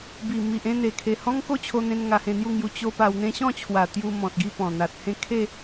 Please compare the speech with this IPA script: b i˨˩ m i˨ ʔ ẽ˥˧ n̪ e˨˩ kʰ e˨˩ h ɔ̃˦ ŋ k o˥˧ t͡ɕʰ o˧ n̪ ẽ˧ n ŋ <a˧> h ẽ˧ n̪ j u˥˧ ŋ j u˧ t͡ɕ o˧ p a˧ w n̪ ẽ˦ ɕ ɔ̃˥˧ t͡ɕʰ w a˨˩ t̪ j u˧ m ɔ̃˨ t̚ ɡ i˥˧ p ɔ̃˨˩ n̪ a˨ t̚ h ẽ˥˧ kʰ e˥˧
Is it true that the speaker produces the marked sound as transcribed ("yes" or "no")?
yes